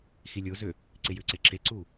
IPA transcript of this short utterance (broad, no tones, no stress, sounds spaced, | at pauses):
x i lʲ o z ø | ǀ ɪ j ʏ ǀ e ǁ e ǀ u